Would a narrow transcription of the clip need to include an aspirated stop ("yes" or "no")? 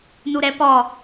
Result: no